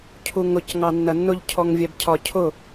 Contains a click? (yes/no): no